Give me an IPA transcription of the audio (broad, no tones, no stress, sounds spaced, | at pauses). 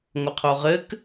ŋʷ ɘ qʰ o ʁ ɘ k